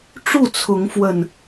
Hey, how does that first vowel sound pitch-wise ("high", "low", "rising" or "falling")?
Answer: falling